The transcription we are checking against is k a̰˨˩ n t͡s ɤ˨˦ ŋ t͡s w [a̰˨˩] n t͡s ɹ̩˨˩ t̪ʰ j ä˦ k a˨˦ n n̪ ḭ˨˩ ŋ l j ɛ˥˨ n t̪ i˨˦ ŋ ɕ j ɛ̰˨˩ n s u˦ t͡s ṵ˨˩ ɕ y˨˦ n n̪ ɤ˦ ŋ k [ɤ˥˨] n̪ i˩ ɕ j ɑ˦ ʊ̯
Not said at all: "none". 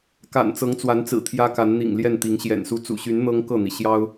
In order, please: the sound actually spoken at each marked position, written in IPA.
a˨˦, ɤ˥˨

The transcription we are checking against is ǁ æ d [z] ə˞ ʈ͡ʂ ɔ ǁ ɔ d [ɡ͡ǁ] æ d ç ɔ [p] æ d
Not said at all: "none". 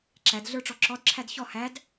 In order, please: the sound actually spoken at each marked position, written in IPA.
ɮ, ǁʰ, h

